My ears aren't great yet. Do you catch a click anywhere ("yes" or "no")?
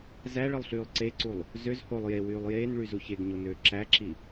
yes